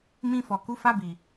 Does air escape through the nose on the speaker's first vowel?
yes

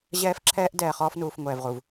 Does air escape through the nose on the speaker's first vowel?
no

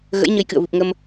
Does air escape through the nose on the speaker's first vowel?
no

